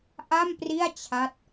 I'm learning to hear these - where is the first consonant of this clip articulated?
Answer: throat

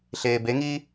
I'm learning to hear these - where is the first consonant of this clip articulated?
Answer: tongue tip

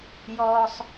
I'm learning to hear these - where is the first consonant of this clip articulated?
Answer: palate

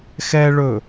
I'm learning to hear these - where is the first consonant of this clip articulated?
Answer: velum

